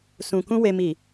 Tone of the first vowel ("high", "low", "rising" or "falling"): low